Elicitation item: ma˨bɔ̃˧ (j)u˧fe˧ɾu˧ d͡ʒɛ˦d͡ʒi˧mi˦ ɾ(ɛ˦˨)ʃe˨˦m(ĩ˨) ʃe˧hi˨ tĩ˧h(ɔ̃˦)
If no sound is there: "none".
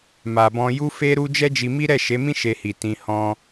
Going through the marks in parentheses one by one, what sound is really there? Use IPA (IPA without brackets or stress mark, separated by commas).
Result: j, ɛ˦˨, ĩ˦, ɔ̃˦